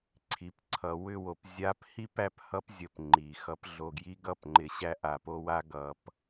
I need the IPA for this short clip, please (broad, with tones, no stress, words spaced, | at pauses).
ǀʰi˨pǀʰʌ˨ wʏ˦˨wo˨p zʲa˦p hi˦p æ˦phʌ˦pzʲə˨p ŋ͡ǃi˨xʌ˦p ɮo˨ɡji˦ɡʌ˦˨pŋ͡ǃɪ˨ ɕæ˦ʔa˨po˦wa˦ ɡʌ˨˦p